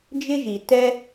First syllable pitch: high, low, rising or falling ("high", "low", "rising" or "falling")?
high